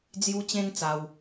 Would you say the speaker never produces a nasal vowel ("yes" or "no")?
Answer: no